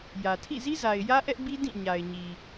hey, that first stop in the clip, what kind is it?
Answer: aspirated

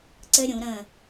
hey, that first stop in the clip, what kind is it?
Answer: click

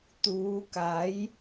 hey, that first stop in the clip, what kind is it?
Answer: plain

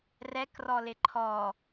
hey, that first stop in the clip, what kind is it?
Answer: plain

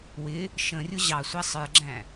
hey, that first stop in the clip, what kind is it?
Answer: click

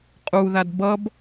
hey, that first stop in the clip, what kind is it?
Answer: ejective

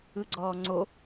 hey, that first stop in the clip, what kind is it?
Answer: click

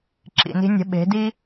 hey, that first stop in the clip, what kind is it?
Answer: click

